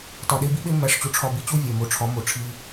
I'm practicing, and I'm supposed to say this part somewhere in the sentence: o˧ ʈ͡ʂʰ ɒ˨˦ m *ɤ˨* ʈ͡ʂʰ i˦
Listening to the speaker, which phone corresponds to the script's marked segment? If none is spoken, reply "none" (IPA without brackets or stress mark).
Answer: o˨